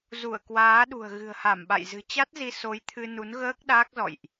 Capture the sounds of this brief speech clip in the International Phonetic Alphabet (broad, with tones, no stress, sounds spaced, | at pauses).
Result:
z u˧˩ ə̯ k w aː˨˦ ɗ ṳ˨˩ ə̯ ɣ ɨ̤˨˩ ə̯ h a˧˩ m ɓ a̰˧˨ j z ɨ̤˨˩ t͡ɕ a˦˥ t̚ z i˧ s o˨˦ j t̪ʰ ɨ˧ n u˨˦ n ɣ əː˦˥ k̚ ɗ aː˦˥ k̚ z ɔ̰˧˨ j ʔ